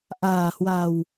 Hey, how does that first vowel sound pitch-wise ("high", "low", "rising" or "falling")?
low